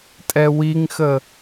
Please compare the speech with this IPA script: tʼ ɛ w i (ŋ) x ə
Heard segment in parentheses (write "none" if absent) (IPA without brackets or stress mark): ŋ